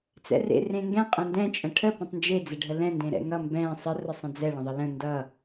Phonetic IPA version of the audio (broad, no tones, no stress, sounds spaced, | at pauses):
t͡s ɛ̰ r ḛ r ẽ ŋ ɡ ɛ̃ qʼ ɛ̃ n d ɛ̃ t͡ʃʼ ə̃ ʈʰ ə p ə̃ tˤ n d͡ʒ e d͡z ɛ ɖʱ ə l ɛ̃ n d ẽ ɾ ɛ̰ ŋ ʌ m b ɛ̃ sˤ ə r ə sˤ ə̃ d͡z ɛ ɭ ə̃ ðˤ ə l ə̃ n d ʌ